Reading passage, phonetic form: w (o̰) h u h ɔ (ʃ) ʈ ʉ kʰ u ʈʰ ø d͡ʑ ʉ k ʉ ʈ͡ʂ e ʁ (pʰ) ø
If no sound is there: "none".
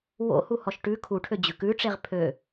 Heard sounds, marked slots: o̰, ʃ, pʰ

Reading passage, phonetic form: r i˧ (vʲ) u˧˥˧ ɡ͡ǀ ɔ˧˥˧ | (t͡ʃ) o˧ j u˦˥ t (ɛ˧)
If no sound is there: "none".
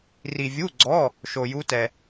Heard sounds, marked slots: vʲ, ʃ, ɛ˧

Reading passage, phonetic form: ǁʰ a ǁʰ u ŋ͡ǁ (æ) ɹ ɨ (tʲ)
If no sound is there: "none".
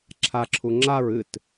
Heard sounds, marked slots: a, t

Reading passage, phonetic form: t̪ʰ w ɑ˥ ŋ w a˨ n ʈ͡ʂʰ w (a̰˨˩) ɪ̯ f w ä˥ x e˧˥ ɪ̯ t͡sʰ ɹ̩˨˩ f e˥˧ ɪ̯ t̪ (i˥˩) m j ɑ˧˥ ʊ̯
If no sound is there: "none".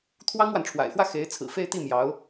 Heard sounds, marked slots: a̰˨˩, i˥˩

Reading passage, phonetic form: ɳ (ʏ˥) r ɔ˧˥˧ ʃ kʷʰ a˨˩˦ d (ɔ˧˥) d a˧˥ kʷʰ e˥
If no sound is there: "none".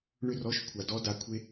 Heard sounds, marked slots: ʏ˥, ɔ˧˥

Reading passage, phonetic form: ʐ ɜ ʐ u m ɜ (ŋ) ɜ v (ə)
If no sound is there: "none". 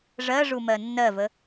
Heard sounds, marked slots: nː, ə

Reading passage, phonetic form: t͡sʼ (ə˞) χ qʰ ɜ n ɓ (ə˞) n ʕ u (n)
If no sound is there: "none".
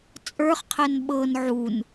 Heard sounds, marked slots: ə˞, ɤ, n

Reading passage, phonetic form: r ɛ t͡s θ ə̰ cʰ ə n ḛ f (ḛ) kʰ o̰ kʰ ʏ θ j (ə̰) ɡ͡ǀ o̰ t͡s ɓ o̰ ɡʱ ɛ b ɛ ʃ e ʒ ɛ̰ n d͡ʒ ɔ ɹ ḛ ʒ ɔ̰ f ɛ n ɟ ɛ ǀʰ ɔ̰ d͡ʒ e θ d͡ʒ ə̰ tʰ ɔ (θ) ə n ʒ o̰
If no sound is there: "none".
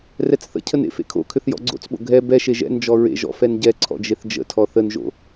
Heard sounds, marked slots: ḛ, ɔ̰, θ

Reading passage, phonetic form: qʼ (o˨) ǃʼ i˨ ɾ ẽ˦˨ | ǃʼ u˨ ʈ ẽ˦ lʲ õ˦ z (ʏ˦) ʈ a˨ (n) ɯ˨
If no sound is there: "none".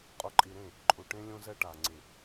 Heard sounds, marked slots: o˨, ɛ˦, ŋ͡ǀ

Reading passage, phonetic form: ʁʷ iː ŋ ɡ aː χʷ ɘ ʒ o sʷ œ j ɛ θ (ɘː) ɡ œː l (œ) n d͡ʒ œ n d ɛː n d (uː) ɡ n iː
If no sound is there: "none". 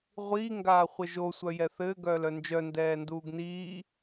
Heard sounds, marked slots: ɘː, œ, uː

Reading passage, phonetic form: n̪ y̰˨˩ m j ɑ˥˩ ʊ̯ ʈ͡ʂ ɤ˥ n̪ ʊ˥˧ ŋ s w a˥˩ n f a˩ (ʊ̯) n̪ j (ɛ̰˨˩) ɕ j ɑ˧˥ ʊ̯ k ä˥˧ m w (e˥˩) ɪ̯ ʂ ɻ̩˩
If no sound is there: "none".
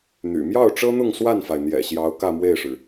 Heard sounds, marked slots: ɪ̯, ɛ̰˨˩, e˥˩

